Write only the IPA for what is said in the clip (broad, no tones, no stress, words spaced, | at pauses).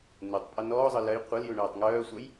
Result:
nutˤ pʼœnɔːzˤɤ lɜj qʷɤlju ɳœːtˤŋœːsʷœj